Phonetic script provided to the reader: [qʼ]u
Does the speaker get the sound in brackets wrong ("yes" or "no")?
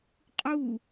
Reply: no